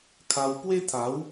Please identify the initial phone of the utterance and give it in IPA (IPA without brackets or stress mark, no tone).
kʰ